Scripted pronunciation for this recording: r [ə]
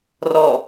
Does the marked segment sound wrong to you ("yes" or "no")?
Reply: yes